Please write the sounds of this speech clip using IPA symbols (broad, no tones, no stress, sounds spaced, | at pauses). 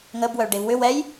ŋ ə b w œ ɭ ɖ e v w ʏ w ɛ j